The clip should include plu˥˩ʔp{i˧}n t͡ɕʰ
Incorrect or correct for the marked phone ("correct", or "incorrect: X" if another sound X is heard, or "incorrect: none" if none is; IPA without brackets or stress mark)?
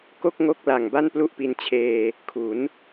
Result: correct